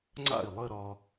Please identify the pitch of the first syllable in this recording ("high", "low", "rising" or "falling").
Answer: falling